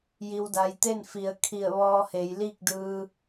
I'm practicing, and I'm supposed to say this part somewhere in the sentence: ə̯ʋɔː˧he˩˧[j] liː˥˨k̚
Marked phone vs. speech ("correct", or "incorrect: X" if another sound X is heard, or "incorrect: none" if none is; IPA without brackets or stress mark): correct